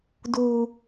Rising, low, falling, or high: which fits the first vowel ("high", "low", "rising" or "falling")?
high